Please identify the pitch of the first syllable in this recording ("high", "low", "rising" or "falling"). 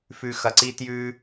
low